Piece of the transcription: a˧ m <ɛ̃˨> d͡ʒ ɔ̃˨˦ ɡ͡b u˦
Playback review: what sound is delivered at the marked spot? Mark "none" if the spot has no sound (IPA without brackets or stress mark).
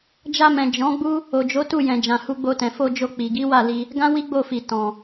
ɛ̃˨